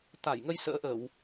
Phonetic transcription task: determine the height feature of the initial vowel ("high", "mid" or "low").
low